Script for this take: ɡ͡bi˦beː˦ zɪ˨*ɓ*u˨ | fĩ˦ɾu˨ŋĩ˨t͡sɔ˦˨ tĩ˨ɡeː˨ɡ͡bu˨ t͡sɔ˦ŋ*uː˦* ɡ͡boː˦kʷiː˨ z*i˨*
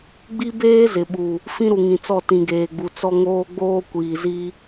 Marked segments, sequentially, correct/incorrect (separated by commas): correct, incorrect, incorrect